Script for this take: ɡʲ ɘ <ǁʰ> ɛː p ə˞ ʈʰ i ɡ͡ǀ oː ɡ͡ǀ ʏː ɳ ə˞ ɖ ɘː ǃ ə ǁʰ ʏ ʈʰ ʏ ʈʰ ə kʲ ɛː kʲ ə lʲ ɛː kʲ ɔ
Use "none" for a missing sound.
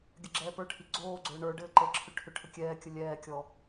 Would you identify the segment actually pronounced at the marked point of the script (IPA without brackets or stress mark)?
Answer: ɡ͡ǁ